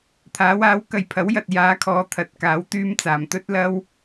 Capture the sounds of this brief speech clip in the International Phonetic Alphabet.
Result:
t̪ʰ aː˨˥ w aː˨˥ w k ɐ˨ j pʰ ɐ˨˥ w j ɐ˨ t̚ j aː˨˥ kʰ ɔː˨˧ t̪ʰ ɐ˨ t̚ k aː˨˥ w t̪ yː˧ m t͡s aː˨˩ m t̪ ɵ˥ t̚ l ɐ˥ w

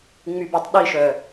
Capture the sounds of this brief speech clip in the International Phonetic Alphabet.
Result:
ŋ͡m y b e tˤ ɗ i ʃ œ

